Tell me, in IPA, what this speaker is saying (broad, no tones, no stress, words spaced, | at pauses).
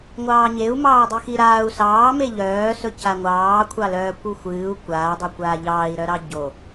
ŋʷɑːɲeu̯mɑː dˤixiɾaːu̯ sɑːme ʎœːsɵ caŋʷɑː kʷʰɑlœːkʷ uxʷɨːu̯ kʷaːdˤo kʷaːʎɑːi̯ɾœɾɑ ɟo